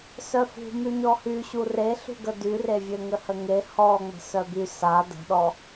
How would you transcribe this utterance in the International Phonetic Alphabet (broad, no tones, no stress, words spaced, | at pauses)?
sœfṳ myɲɔhy ɕureɬṳ ɡədyrevʲø ŋəhəŋe hɔŋ͡mə̤ sœby sa də̤ɗɔ